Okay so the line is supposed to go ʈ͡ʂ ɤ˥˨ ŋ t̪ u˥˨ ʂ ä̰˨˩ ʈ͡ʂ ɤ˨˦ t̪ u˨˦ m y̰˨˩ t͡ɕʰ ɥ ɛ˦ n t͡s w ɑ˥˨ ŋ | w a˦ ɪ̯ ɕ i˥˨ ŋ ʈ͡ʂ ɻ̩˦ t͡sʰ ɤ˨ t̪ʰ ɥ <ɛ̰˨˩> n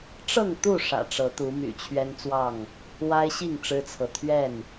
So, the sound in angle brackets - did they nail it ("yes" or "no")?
no